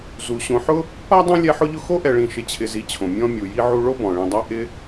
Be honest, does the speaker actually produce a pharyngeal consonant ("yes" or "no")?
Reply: yes